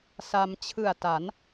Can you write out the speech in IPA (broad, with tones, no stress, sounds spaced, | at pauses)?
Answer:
s a˧ m t͡ɕʰ ɯ˨˩ a̯ t a˩˦ n